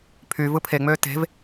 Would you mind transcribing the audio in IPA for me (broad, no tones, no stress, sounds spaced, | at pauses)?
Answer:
pʰ y v ɯ pʰ e ŋ͡m øː t e̤ v